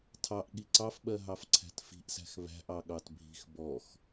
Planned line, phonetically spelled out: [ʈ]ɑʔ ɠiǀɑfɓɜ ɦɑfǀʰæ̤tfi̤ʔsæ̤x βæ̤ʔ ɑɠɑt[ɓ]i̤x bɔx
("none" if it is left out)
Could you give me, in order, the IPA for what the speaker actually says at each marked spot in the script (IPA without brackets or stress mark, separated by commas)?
tʰ, bʱ